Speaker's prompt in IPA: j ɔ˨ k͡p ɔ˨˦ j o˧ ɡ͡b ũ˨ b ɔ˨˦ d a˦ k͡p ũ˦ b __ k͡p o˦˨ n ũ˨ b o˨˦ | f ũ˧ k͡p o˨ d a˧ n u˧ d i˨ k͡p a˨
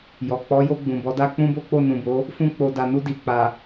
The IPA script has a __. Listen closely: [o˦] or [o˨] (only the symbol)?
o˦